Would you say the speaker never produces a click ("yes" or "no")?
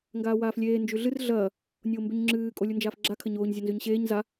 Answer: no